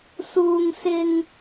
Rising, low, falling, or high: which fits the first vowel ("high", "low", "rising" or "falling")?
high